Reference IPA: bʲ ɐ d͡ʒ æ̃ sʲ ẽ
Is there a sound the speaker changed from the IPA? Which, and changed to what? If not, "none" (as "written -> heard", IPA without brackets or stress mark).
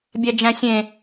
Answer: ɐ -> æ